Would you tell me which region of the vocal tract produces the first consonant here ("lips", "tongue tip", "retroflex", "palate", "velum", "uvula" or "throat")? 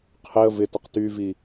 uvula